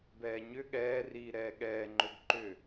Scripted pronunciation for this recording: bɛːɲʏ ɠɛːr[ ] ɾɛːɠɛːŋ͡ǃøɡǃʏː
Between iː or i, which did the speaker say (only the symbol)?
iː